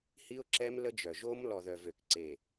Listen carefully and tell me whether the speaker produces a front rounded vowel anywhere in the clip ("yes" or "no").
yes